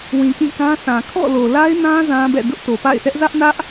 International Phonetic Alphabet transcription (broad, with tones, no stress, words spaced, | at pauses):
wĩ˨kĩ˦˨kã˦sʰã˨ kʰɔ̰˦˨lo˨ la˦ɪ̯nã˦ zã˦bɛ̰˦˨ dʊ˦ʔto˨pa̰˦˨ɪ̯sɛ˦ʔ zä˦ʔnä˦ʔ